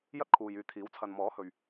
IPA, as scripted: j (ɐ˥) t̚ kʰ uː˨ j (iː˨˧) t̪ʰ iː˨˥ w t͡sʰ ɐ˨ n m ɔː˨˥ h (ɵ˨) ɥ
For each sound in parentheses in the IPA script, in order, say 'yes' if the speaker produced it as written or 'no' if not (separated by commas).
yes, no, yes